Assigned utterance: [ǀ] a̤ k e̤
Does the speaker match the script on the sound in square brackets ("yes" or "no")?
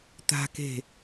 no